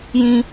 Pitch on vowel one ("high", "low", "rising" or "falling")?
high